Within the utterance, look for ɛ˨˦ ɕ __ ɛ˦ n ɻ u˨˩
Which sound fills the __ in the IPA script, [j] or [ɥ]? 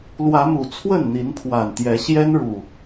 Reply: j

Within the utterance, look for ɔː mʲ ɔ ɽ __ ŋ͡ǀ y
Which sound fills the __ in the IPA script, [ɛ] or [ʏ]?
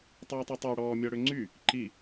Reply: ʏ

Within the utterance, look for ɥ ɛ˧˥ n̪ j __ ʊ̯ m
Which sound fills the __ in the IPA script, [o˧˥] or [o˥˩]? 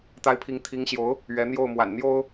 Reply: o˥˩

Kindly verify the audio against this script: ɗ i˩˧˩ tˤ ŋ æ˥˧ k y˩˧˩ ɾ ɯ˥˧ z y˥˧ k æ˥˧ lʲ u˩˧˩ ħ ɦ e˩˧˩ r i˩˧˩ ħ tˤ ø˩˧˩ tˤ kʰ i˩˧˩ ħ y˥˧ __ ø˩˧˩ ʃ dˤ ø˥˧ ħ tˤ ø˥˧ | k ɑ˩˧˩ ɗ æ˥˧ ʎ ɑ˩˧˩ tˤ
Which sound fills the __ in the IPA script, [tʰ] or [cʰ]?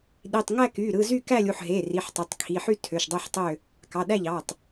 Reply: tʰ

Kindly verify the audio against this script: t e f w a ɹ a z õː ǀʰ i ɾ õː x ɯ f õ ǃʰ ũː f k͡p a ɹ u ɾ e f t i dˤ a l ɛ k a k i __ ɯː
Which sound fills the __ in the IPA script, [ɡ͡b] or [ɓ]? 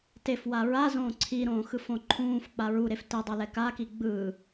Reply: ɡ͡b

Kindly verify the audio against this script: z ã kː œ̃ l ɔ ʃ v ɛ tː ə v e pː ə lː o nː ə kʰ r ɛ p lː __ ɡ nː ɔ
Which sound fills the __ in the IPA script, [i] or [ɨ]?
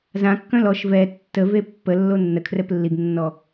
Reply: i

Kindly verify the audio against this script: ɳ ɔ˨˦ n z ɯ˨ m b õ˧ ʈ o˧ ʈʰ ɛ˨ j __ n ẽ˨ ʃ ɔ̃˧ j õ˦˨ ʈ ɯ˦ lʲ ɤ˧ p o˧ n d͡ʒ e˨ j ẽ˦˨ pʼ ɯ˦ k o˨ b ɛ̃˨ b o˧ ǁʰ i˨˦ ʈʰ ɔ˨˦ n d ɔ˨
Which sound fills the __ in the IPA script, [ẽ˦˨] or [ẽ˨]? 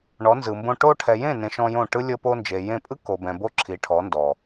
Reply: ẽ˦˨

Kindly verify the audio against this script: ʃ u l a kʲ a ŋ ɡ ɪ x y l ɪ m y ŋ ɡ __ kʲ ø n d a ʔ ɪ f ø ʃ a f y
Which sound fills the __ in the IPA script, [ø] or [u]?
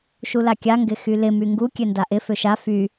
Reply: u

